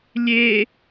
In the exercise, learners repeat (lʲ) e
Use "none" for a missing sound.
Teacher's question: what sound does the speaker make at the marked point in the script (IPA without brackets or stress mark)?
lʲ